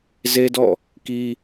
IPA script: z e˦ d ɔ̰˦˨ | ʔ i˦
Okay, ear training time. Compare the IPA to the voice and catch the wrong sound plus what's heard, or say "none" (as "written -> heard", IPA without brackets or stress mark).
ʔ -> k